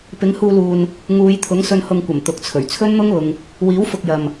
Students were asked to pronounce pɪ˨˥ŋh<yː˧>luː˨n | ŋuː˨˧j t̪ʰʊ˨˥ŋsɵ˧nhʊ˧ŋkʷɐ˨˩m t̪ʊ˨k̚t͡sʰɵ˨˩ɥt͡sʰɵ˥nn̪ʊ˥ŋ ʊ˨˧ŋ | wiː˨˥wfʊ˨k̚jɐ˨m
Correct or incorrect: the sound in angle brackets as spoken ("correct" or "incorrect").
incorrect